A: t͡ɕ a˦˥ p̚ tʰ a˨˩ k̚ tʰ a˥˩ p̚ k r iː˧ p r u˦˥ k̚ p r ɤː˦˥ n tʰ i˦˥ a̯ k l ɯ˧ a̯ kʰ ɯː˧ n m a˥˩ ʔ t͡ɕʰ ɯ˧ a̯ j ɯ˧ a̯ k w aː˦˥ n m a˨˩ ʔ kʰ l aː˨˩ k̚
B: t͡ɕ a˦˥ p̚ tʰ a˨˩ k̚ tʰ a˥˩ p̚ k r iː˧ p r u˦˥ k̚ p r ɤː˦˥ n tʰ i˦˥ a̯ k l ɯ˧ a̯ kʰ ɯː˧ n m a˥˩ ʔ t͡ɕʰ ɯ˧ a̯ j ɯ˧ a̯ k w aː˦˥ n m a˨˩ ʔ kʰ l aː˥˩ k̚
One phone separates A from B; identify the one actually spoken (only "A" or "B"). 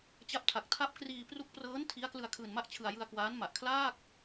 B